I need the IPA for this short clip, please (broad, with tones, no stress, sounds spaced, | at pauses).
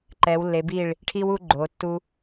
ǃ ɛ˩˧ w lː e˩˧ b i˧˩ ɭ | ʈʰ i˧ w u˧ ɡ͡ǃ o˩˧ tː u˧